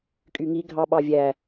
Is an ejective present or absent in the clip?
present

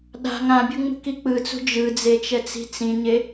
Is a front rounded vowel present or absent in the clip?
absent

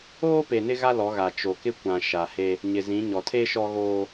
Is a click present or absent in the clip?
absent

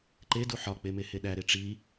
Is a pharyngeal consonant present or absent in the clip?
present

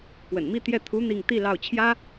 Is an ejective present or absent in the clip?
absent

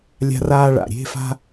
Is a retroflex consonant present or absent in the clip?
present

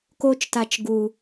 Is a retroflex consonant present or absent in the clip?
absent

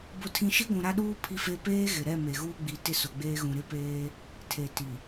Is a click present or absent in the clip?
absent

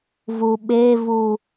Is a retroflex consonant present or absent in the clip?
absent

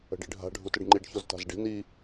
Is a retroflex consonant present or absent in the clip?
present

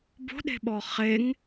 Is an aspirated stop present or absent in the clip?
absent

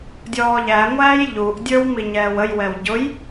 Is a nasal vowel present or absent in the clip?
absent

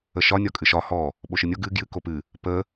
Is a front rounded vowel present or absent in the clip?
absent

